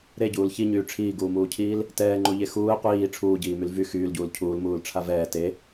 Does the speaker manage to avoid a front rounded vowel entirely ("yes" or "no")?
no